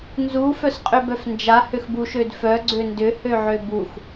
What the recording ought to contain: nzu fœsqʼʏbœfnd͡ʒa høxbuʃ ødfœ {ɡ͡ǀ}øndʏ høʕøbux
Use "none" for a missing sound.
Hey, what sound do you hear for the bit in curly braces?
ɡ͡ǀ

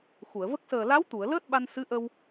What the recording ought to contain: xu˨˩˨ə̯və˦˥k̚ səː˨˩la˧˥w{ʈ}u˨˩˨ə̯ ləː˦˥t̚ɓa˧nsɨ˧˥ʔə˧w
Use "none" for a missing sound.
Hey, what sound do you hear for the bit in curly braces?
t̪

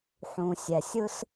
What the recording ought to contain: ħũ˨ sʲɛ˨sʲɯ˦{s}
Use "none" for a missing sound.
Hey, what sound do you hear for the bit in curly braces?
s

